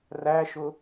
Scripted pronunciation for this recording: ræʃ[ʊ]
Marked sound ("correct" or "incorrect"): correct